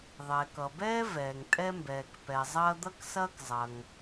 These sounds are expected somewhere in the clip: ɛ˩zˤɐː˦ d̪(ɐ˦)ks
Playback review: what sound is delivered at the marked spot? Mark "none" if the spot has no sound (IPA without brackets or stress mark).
ɐ˦